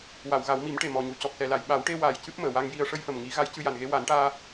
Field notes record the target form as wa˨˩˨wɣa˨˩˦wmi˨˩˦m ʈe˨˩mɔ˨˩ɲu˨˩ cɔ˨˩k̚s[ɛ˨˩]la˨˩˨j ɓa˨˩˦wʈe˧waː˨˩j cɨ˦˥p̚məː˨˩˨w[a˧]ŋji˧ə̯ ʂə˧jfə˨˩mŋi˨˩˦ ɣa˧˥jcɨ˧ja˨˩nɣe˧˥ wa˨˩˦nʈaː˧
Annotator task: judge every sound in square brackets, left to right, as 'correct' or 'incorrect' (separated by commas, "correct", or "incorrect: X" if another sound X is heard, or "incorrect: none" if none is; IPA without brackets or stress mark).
correct, correct